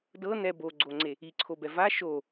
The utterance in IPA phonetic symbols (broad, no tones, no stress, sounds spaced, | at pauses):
d ɤ n ɛ b o ɡ͡ǀ o ŋ͡ǀ e | i ǀʰ o b ɛ v a ʃ o